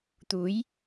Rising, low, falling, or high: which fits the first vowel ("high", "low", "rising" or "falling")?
rising